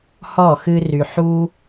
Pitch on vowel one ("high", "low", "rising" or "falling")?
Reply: falling